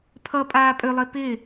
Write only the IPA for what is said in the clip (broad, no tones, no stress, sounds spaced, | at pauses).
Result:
pʰ ʌ pʼ aː pʼ ʏ lˠ ɪ p ɪː